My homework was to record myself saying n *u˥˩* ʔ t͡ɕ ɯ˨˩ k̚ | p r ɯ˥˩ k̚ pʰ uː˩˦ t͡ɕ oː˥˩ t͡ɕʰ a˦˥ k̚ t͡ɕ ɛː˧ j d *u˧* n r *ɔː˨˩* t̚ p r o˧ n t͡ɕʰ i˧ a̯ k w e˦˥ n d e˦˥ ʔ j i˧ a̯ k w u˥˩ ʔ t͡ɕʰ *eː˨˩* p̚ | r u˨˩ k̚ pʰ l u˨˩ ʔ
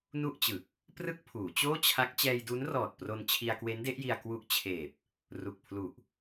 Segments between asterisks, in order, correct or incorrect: correct, incorrect, correct, correct

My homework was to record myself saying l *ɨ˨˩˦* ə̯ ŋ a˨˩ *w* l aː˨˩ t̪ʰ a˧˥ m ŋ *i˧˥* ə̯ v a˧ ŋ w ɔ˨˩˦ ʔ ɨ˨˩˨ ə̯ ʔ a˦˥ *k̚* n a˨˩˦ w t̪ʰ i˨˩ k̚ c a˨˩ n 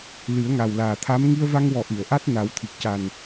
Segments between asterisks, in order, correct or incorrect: correct, correct, incorrect, incorrect

